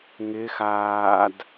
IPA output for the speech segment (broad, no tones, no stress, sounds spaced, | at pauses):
ŋ ɪː x aː d